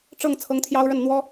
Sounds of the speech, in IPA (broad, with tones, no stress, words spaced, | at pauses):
ʈ͡ʂɤ˥˩ŋ t͡sʰɤ˥ŋt̪ʰjɑ˥ʊ̯ɻə˥˩n n̪wɔ˥